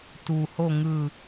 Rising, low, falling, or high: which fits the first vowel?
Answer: low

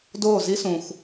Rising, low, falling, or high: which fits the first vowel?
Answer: falling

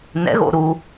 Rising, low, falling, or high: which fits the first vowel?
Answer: rising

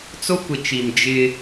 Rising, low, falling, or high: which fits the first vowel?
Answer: high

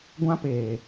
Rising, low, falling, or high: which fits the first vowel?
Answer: high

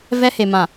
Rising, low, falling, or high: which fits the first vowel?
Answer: high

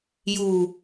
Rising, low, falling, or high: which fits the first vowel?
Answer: low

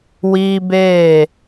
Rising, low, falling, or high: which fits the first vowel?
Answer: high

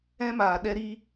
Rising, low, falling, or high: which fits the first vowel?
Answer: high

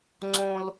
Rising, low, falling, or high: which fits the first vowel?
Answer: high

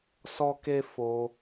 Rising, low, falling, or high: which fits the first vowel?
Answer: high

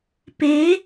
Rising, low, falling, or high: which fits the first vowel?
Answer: rising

